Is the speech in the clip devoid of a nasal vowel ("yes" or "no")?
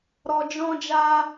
no